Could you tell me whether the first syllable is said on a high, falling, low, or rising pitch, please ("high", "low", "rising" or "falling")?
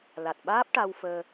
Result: low